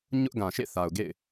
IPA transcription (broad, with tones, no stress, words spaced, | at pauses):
ɲʊ˦ʔ ɡã˨ʃḛ˦˨θa˨ʊ̯ ɡḛ˦˨ɪ̯